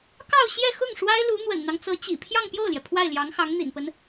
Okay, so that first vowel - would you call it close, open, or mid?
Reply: open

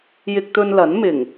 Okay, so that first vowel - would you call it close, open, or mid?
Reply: close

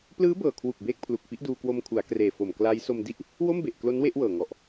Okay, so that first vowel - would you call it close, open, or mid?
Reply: close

